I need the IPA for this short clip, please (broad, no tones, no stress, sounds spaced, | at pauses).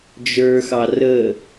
d͡ʒ ə˞ x ɑ r ə